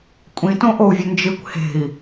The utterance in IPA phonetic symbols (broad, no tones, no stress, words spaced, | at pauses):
kʷʼĩtõʔou̯vʲɵ nd͡ʒɨkʷ he̤i̯